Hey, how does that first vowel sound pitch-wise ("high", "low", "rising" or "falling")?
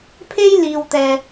high